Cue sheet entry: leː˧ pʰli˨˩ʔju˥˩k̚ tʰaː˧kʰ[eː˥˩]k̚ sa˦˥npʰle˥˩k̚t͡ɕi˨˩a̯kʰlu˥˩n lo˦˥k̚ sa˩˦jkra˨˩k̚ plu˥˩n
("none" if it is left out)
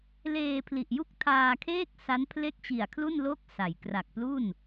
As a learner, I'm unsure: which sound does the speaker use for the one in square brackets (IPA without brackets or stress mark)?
eː˥˩